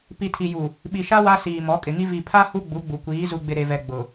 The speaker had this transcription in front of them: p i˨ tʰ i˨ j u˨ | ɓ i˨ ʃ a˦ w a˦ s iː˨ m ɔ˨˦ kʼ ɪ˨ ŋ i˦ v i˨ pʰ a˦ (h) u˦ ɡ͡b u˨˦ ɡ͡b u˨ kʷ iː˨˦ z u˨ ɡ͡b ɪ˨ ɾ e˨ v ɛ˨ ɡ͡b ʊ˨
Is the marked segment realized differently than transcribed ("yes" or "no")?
no